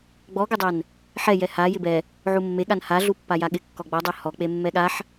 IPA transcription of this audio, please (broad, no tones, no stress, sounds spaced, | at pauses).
ɡ͡b ɔ ɡ ɪ dˤ ɛ n | ħ ɛ j ɛ h a j ɪ b ɛ | ʕ u mː e ɠ a n h a ɮ u pː a j a ɠ ɪ kː ɔ ɡ͡b ɔ dˤ ɛ h ɔ k͡p e mː ɛ ɠ a ħ